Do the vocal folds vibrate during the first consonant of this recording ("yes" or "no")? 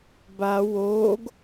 yes